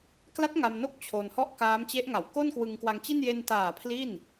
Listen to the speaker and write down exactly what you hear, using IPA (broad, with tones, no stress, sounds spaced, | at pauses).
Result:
k l a˦˥ t̚ ŋ a˧ m n o˥˩ k̚ t͡ɕʰ o˧ n h ɔ˥˩ ʔ k aː˦˥ m t͡ɕ e˦˥ ʔ ŋ a˨˩ w k o˥˩ n k w ɯ˧ ŋ k w a˧ ŋ t͡ɕ i˥˩ n j e˧ n t aː˨˩ pʰ l i˥˩ n